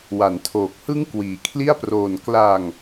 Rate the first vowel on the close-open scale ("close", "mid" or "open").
open